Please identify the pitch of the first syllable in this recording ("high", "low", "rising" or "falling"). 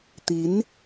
rising